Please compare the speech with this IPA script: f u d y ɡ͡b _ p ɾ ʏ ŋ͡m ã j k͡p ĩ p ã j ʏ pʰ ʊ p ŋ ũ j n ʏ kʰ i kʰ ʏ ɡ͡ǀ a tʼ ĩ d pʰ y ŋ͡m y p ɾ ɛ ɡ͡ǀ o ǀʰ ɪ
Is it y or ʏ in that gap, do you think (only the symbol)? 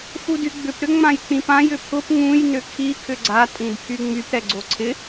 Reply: ʏ